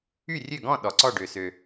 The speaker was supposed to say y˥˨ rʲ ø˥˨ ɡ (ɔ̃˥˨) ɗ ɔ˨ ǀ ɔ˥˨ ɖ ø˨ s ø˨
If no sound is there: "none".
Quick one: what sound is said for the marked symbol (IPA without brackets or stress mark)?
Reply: ɔ̃˥˨